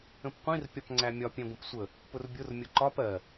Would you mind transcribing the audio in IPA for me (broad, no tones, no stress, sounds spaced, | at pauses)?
ə̃ p qʷ ĩ r pʲ ɒ p ŋ͡ǀ æ mʲ ɒ pʲ ɛ̃ ɡʷ ə̃ p sʷ ə | p ʊ r bʲ ʊ r mʲ ʊ ǃ ɒ p ɜ